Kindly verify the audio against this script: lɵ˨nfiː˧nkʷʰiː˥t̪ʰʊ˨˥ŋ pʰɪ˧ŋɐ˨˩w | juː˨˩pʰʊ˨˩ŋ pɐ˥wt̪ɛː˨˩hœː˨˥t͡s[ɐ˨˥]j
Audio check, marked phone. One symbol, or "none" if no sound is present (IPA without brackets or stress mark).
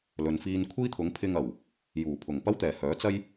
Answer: ɐ˥